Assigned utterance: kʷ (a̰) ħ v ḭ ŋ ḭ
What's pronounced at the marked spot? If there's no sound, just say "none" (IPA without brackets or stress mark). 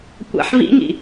a̰